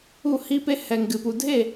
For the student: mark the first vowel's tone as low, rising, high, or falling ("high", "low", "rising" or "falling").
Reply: falling